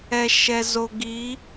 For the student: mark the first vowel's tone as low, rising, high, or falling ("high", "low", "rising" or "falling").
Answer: low